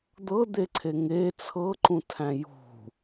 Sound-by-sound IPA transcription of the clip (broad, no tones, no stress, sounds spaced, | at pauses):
d̪ ɤ d̪ e ǀʰ e ŋ e t͡sʰ ɤ ǃ ũ tʰ æ̃ j ṳ